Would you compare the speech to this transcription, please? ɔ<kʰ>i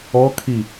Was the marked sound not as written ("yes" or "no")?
no